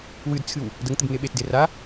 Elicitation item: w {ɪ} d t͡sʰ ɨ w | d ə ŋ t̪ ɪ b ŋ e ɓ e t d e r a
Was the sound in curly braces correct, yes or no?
no